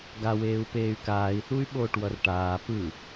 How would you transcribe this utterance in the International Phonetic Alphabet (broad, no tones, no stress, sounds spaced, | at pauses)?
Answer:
ɡ a w eː u̯ p eː y̯ k aː i̯ θ u y̯ ɓ oː ʈ w ʌ r ʈ aː p ɯ